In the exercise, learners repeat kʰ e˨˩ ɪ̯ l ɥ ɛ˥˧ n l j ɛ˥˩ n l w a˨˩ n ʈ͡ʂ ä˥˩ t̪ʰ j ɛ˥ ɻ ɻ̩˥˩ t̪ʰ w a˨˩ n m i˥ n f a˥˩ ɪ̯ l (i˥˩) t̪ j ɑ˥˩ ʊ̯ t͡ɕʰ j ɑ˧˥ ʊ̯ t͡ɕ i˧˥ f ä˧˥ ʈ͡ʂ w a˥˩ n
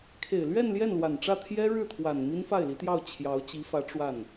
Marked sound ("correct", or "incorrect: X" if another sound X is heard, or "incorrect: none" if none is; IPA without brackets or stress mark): incorrect: i˧˥